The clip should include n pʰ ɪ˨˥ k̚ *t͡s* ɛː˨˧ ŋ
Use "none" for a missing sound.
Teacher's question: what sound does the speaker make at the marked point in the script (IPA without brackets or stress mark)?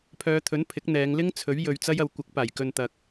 n̪